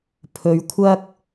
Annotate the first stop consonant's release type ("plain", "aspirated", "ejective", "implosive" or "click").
aspirated